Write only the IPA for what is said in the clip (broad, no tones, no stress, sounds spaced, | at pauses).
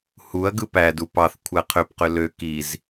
h u ɐ̯ ɡ ɯ p æ d u p ɑ θ kʷʰ æ qʰ ø p q ø l ø k i z